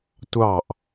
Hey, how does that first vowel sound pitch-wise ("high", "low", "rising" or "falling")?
falling